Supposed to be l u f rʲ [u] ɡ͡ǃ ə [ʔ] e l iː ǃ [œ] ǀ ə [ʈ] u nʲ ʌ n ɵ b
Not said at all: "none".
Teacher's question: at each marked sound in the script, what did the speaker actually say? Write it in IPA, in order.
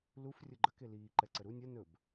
ʊ, k, ɛ, ɾ

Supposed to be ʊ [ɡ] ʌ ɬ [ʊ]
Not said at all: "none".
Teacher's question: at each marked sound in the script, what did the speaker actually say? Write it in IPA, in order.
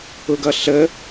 ɡ, ə

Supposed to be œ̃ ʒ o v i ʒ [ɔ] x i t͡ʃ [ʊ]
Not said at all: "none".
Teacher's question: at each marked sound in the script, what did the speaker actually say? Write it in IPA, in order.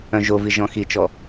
ɔ̃, ɔ

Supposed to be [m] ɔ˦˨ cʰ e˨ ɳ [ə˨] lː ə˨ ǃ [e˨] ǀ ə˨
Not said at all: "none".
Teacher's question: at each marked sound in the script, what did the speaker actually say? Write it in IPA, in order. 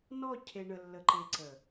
n, ə˨, e˨

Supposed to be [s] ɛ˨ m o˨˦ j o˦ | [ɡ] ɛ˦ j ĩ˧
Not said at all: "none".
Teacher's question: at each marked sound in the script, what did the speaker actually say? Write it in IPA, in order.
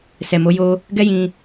s, ɡ

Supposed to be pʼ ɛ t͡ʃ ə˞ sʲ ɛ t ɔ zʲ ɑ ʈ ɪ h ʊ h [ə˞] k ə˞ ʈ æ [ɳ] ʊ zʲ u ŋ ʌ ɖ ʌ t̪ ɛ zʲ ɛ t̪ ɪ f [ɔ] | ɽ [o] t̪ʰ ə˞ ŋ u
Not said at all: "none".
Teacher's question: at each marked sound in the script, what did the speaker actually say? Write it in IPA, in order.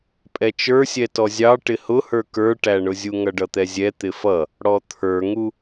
ə˞, ɳ, ʌ, ɔ

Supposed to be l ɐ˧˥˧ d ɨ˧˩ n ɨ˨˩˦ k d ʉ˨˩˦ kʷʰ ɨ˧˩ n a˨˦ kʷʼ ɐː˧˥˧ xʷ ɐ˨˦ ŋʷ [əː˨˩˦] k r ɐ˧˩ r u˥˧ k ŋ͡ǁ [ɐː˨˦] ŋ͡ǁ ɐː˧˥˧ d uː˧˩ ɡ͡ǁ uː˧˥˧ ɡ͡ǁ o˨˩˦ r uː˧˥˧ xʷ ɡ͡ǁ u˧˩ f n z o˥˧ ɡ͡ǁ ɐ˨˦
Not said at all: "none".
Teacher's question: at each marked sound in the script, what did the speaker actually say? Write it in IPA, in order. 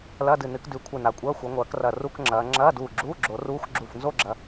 ɐː˨˩˦, ɐː˨˦

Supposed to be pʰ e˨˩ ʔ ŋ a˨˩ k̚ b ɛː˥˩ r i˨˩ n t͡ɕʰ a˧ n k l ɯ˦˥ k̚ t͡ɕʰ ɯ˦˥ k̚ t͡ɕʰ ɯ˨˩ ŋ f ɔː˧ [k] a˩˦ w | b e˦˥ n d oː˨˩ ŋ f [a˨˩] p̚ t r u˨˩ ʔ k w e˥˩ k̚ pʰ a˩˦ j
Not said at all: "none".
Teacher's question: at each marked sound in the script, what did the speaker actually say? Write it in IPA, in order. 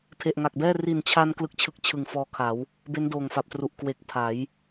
kʰ, a˨˩

